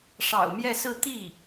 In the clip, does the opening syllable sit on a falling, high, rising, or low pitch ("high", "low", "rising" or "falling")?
low